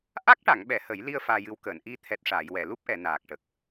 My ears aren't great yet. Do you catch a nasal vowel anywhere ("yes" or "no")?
no